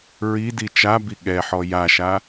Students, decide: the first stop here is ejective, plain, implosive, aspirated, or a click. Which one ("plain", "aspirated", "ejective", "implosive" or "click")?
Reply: plain